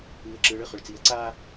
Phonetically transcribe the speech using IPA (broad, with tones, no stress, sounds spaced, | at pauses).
ɯː˨˦ ə̯ ǁ ɯː˨˦ ɭ ɯ˨ χ ʊ˨ ɭ t͡s i˨˦ ə̯ ǀ aː˥